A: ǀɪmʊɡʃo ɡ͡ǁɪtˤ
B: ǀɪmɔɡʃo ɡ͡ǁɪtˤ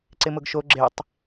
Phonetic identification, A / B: A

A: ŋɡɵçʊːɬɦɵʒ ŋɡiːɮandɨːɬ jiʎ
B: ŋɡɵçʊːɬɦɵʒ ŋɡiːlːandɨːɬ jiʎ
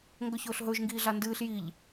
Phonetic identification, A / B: A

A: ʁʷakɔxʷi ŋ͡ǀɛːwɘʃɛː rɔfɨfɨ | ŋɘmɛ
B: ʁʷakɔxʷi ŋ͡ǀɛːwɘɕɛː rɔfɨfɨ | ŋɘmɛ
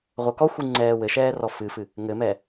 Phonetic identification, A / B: A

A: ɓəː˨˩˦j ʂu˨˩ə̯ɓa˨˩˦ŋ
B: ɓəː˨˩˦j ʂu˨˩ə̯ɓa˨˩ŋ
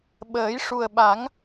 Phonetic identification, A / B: A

